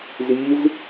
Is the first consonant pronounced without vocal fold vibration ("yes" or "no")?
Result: no